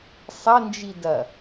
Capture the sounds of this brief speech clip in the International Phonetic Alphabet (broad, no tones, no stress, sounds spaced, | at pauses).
sˤ ɐ n d͡ʒ i d ɐ